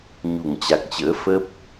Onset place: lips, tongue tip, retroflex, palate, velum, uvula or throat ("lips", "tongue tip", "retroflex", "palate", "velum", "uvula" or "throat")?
palate